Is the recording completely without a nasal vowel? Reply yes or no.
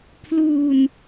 yes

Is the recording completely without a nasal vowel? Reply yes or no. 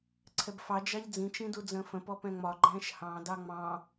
no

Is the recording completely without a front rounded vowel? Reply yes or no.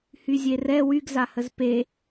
no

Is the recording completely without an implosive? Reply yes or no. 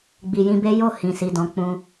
yes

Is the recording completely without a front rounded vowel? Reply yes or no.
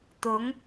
yes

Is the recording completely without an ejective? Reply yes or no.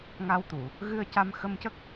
yes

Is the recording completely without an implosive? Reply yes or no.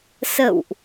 yes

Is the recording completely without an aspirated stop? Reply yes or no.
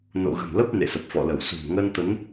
yes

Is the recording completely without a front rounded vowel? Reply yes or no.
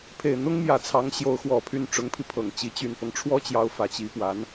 no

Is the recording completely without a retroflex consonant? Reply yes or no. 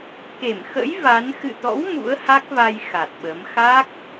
yes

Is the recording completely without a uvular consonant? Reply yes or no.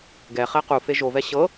no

